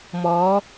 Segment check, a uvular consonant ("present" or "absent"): absent